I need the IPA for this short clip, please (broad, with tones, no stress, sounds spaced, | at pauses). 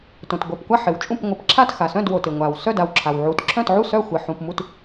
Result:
t õ˩ t ɡʷ œ˩˧˩ p kʷ a˥˨ ħ ɪ˩ w t͡ʃʼ ũ˥˨ p ŋʷ ɪ˩˧˩ p ǁʰ a˥˨ t x a˩ s œ̃˥˨ d w o˩ t ɪ˩ ŋʷ a˩ w s œ˥˨ d a˩ w ǁʰ a˩ w ʕ u˩˧˩ t ǁʰ œ̃˥˨ t ʕ u˥˨ s œ˥˨ xʷ ɪ˩˧˩ ħ ũ˩˧˩ p m u˥˨ t